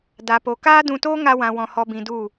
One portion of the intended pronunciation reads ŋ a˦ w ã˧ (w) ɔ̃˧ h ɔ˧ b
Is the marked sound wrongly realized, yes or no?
no